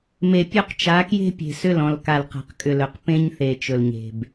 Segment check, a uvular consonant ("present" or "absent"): present